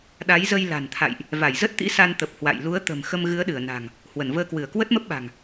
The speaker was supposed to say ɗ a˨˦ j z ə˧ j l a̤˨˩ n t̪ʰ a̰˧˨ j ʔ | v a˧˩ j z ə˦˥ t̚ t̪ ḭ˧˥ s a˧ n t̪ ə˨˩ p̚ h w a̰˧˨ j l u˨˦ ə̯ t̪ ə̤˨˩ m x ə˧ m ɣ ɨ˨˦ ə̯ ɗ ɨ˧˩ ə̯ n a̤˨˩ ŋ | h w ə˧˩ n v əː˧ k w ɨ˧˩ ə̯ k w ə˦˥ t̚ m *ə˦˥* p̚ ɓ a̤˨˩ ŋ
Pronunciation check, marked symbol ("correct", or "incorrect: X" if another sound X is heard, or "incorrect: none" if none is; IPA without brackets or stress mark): correct